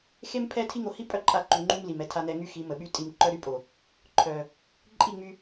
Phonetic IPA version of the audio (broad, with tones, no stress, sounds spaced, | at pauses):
x e˦ m pʰ ɛ˦ tʰ i˦ ŋ o˧ h i˦ pʼ œ˦ ǃʼ a˧ ǃ u˨ ŋ͡ǃ u˦ m l i˨ m ɛ˧ tʰ a˧ n̪ ɛ˧ ŋ y˦ x i˨˦ m ə˨ ɓ y˧ tʼ i˧ m ǃ œ˦ ɾ y˦ pʼ o˨ | ǃʰ œ˨ | ǃʼ i˦˨ ŋ͡m y˧